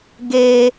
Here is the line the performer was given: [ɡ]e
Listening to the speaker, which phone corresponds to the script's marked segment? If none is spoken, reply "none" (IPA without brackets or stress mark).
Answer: ɡ